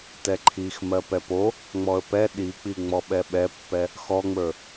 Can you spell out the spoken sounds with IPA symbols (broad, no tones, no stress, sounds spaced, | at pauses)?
t ɛ ǃʰ i x m ɜ p ɛ p o | ŋ͡m ɔ ə̯ p ɛ ɗ i k͡p i ŋ͡m ɔ ɓ ɛ ɓ ɛ pː ɛ | x ɔ ŋ͡m ə˞